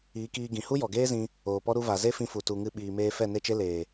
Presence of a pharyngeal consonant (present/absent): absent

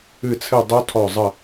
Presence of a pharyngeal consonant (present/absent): absent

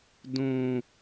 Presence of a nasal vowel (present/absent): present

